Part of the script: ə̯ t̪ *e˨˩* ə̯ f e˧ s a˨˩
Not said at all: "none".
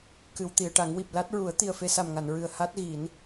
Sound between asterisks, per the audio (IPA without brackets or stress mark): i˨˩